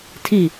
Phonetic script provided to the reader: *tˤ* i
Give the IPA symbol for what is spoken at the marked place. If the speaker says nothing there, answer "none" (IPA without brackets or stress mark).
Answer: tʰ